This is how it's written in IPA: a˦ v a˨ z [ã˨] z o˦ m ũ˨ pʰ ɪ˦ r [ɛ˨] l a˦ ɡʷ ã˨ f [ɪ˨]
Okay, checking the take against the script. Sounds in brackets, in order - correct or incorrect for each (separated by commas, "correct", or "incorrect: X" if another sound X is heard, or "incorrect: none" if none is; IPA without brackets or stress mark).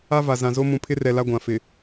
correct, correct, correct